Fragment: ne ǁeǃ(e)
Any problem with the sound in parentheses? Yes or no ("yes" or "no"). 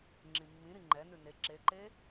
no